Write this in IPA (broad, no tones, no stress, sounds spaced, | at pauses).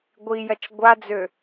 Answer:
ɡʷ i j ɐ t͡ʃ ɡʷ a d͡z ø